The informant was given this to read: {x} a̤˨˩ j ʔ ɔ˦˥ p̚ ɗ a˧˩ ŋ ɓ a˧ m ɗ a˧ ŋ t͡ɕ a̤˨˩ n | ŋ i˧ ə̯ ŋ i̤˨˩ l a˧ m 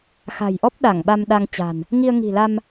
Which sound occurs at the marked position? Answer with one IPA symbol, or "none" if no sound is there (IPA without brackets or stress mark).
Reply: x